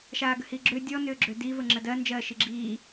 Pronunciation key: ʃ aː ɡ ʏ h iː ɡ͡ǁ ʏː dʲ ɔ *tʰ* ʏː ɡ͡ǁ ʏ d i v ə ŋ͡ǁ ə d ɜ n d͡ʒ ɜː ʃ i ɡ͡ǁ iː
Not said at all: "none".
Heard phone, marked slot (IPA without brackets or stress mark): n